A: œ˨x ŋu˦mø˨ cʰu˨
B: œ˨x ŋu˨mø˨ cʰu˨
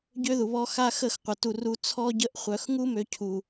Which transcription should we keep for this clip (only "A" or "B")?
A